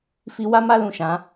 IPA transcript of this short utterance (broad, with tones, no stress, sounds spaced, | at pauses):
f i˦ w a˦ m a˦ l ũ˦˨ ʃ ã˨˦